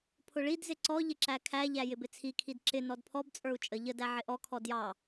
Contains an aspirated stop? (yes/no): yes